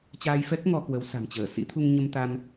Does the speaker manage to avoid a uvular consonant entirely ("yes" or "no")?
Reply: yes